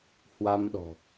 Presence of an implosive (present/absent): present